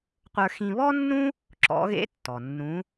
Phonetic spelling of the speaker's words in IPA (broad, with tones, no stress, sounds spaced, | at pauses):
qʷ ə˞˧ x ĩ˧ β ɔ˥ nː ũ˥ | ǁ ɔ̰˧˥ ɣ ḛ˥ tː ɔ˩ nː ũ˧˥